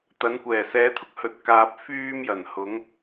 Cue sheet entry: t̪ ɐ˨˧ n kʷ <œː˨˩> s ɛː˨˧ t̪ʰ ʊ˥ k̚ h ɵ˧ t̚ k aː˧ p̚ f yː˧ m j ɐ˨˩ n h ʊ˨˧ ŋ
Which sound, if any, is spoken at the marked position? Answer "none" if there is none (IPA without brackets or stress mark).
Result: ɛː˨˩